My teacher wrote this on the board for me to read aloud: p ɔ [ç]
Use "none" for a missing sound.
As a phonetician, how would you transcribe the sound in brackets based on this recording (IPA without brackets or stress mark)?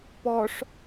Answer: ʂ